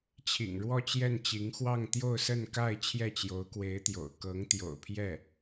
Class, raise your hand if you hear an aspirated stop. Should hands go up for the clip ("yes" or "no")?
yes